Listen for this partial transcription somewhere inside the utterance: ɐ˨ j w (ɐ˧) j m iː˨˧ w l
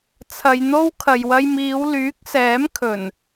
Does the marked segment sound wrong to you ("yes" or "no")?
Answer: no